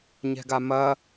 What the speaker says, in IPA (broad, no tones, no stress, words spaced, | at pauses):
ɲɛ̤ɡamɐ